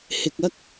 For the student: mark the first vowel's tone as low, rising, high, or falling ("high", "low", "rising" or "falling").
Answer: low